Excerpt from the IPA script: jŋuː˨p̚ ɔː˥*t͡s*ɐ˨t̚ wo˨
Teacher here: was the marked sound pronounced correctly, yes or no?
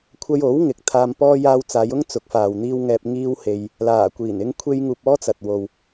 yes